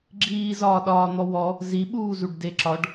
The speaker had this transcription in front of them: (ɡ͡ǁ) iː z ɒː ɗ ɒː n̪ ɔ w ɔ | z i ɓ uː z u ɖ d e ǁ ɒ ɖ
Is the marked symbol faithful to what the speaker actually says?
yes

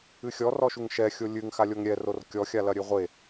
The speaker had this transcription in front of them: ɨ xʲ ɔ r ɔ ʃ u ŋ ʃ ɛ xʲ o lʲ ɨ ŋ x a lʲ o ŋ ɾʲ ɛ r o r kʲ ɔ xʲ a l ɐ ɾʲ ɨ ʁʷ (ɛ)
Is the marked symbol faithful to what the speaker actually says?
no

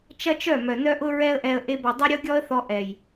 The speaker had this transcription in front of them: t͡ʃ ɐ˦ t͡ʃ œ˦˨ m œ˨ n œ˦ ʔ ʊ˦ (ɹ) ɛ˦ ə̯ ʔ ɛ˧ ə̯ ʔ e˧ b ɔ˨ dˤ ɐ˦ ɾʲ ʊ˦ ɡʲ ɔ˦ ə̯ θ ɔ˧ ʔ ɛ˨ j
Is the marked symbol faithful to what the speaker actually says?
yes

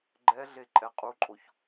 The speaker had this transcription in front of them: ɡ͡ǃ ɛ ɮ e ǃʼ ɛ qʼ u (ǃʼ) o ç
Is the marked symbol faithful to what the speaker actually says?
yes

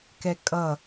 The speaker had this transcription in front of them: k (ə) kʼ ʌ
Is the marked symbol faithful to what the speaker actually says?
no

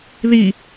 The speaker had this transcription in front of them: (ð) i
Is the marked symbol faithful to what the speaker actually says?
yes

